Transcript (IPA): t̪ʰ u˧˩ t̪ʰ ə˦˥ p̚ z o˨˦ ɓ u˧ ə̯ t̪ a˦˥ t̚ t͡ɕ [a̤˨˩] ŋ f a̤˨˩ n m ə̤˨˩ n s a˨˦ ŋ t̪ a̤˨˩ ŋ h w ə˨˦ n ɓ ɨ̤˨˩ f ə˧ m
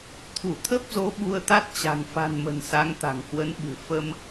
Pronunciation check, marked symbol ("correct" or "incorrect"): correct